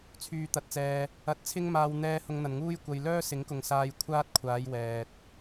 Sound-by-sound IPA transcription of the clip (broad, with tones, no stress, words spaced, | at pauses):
t͡sʰyː˨t̪ɐ˨t̚t͡sɛː˨ | ɐ˨˥t̚t͡sʰɪ˥ŋmaː˧w n̪ɛː˧ hʊ˧ŋn̪ɐ˨nŋuː˥j kʷɐ˧j lœː˥sɪ˨˥ŋkʊ˨ŋsaː˧j kʷʰaː˥t̚kʷʰaː˨˧jwɛː˨t̚